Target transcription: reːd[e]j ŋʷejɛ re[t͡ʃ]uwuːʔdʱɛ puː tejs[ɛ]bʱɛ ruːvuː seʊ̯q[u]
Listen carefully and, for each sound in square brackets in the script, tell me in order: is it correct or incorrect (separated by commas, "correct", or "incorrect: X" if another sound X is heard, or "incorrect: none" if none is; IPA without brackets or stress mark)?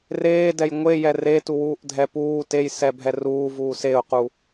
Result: incorrect: ɛ, incorrect: t, correct, correct